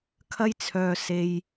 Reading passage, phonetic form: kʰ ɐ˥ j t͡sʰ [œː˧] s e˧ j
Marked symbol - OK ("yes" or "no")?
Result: yes